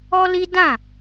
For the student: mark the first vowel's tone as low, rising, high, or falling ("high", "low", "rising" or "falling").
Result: high